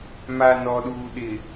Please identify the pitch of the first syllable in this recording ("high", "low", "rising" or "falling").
low